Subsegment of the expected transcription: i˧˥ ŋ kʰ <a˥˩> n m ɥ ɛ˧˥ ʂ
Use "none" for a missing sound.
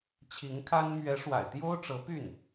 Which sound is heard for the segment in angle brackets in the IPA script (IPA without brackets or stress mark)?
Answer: a˥